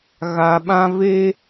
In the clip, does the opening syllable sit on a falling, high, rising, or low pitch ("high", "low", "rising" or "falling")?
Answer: low